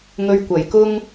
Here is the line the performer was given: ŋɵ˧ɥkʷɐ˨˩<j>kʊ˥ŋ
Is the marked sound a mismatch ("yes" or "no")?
no